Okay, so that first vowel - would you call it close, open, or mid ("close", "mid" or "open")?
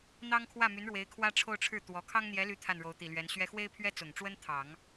open